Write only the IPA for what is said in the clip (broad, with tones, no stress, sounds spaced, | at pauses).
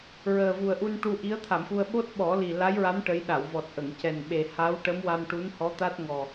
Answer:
ɹ əː˨˩ v u˨˩ ə̯ ʔ u˧ n ʈ u˧ ʔ i˧˥ ə̯ t̪ʰ a˨˩˨ m x u˧ ə̯ ɓ o˦˥ t̚ ɓ ɔ˨˩˦ l i˨˩ l a˧˥ j ɹ a˧˥ m ʈ ə˧˥ j ɗ a˨˩˨ w v ɔ˨˩ t̚ ʔ ə˨˩˨ ŋ c ɛ˨˩ n ɓ e˨˩ h a˧˥ w ʈ ə˧˥ m w a˧ m ʈ u˧˥ n h ɔ˧˥ t̪ a˦˥ t̚ ŋ ɔ˨˩